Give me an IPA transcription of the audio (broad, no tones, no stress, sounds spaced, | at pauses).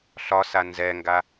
ɬ ɒ s a n z ɛ ŋ ɡ a